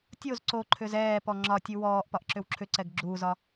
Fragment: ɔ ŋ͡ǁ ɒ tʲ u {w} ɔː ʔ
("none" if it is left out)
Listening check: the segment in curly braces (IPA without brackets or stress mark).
w